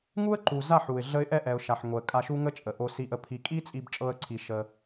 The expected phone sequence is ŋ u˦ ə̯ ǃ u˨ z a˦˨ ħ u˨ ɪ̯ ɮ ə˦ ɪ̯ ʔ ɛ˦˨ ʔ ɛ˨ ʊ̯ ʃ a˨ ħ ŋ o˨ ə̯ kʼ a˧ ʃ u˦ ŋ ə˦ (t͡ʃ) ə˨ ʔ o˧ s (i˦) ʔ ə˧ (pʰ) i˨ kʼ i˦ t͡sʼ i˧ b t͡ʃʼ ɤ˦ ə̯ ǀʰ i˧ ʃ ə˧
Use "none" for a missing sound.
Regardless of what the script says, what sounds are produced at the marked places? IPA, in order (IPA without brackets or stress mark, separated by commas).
t͡ʃʼ, i˧, pʰ